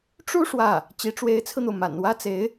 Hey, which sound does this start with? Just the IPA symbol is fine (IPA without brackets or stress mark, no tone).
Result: ʈ͡ʂ